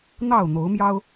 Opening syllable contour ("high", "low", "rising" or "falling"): falling